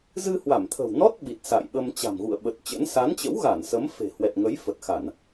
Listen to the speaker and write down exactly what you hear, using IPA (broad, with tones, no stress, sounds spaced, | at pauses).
z ɨ˧ h w a˧˩ m t̪ʰ ə̤˨˩ w n ɔ˦˥ t̚ ɓ i˨˩ t̚ s a̰˧˨ j ɓ ə˧ m t͡ɕ a̤˨˩ m ɣ ṵ˧˨ ə̯ ɓ ə˨˩ t̚ t͡ɕ ə̰˧˥ n s a˨˦ n t͡ɕ ə̰˧˥ w ɣ a˧˩ n s ə˨˦ m f e̤˨˩ h w ɛ˨˩ t̚ ŋ ə˨˦ j f ə˨˩ t̚ x a˧˩˨ n